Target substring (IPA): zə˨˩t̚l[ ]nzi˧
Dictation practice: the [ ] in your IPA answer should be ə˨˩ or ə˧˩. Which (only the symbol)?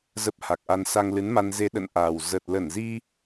ə˧˩